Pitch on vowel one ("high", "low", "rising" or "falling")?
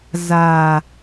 low